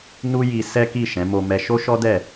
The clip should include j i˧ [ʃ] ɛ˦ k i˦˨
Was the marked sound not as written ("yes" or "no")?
yes